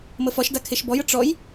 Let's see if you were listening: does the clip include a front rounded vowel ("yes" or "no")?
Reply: no